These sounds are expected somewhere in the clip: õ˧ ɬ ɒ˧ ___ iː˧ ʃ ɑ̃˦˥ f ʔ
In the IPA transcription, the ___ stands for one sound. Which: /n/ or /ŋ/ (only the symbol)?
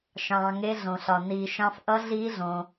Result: n